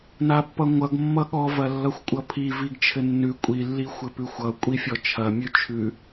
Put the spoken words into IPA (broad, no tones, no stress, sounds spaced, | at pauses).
n a pː ʌ ŋʷ ʌ ɡ mː ʌ ɠ ɔ v ɐ lː ʌ xʷ kʷʼ ʌ pʰ i v i ɡ t͡ʃʰ ɘ nː ʉ kʷʼ i lː i xʷ ɘ p ʉ xʷ ʌ kʷʼ i fʲ ɔ t͡ʃʰ ɐ mʲ ʉ t͡ʃʰ ʉ